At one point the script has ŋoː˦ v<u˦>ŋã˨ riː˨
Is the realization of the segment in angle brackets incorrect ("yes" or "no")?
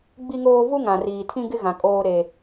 no